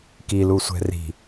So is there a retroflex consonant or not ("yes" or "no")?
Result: no